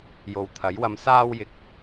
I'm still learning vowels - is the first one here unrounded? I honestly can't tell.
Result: no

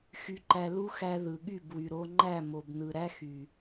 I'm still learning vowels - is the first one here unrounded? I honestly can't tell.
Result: no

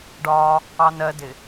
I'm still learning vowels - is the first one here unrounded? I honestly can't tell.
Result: no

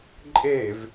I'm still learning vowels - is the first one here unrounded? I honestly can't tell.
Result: yes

